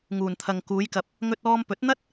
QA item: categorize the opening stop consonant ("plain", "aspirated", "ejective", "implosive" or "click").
aspirated